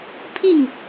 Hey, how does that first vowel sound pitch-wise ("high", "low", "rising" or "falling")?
falling